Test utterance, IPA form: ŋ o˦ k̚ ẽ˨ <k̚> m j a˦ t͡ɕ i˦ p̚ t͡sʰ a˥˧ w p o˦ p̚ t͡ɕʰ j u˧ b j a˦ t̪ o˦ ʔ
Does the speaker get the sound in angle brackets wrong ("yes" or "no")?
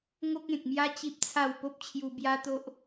no